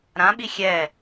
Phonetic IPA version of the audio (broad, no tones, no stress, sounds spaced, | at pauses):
ɾ ã ɓ i xʲ ɛ